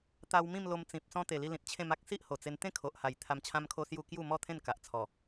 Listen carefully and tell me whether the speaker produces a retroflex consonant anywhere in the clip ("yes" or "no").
no